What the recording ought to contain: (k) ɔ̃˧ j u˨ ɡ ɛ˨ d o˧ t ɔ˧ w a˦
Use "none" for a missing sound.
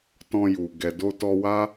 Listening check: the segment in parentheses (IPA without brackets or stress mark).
t